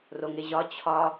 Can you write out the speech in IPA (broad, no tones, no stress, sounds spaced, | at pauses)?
r o ŋ e ʑ ɒ t͡ɕʰ ɒ